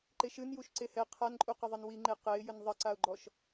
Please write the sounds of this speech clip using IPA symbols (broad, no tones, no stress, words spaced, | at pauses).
ǃeʃɨn juʃǀehɛ qʰanǃʼu qɐðˤenwiŋ͡ǃe qɛɪ̯jɘn ðˤɐǀaʊ̯ɡ͡ǃɔʃ